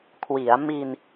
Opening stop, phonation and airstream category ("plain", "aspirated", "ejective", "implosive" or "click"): aspirated